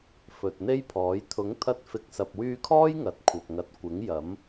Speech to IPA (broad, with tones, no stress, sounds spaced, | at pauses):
f ɵ˨ t̚ n̪ e˥ j pʰ ɔː˨˥ j t̪ʰ ʊ˨˥ ŋ t̪ʰ ɐ˧ t̚ f ɪ˨˥ k̚ s ɐ˨ p̚ w yː˧ kʰ ɔː˥ j ŋ ɐ˨ t̚ kʷʰ ɐ˨ p̚ ŋ ɐ˨ t̚ kʷ ɪ˨˥ ŋ j ɐ˨˥ m